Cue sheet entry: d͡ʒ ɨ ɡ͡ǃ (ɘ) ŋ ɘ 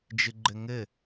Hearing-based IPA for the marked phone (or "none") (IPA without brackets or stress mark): ɘ